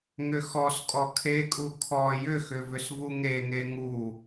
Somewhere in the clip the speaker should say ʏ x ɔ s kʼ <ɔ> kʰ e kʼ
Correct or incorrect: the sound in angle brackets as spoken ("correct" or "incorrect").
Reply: correct